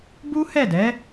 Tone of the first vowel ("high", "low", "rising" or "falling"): high